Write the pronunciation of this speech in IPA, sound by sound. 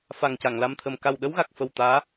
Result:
f a˨˩ ŋ c a˨˩˨ ŋ l a˧ m t̪ʰ ə˨˩ m k a˨˩ w ɗ ə˧˥ w ɣ a˨˩ k̚ f ə˨˩ w t̪ aː˧˥

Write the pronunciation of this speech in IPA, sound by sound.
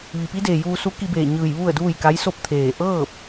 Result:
ʋ i˩ p i˧˥ d eː˩ j uː˧ s u˧˥ k i˧ b eː˧˩ ɲ ɯː˧˩ j ʋ u˥˨ ə̯ d uː˥˨ j k a˧˥ j s o˥˨ p̚ t̪ʰ eː˧˩ ʔ ɤː˥˨ p̚

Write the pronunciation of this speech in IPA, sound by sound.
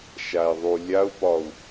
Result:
ʃ a i̯ ðˤ u lʲ a u̯ p ɒ u̯

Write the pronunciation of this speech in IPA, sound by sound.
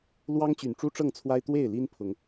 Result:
l w ɑ˦ ŋ t͡ɕ y˨˩ n ʈ͡ʂ u˦ ʈ͡ʂ ɤ˥˨ ŋ t͡sʰ w a˦ ɪ̯ t̪ w e˥˨ ɪ̯ l i˦ n pʰ ʊ˨˦ ŋ

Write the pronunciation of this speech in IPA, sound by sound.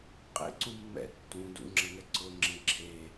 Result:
qʼ ḛ ǀ ũ mː ɛ̰ tː ũ d ṵ ŋ͡ǁ ɐ ŋ ɛ ǀ ʊ ŋ͡ǁ ẽ ǁʰ e

